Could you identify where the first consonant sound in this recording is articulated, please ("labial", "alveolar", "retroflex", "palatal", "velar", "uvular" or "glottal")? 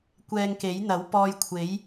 velar